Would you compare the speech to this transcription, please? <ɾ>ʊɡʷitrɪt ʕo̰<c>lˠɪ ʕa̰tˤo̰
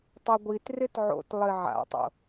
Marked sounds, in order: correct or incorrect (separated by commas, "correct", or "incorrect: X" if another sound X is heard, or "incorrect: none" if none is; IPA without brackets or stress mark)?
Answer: incorrect: tˤ, incorrect: t